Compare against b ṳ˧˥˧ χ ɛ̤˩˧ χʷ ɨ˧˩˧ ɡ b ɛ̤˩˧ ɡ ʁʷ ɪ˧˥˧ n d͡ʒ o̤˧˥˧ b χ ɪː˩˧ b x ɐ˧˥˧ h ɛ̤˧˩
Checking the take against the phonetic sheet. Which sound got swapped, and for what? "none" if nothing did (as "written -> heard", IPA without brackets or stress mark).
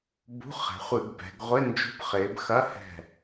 none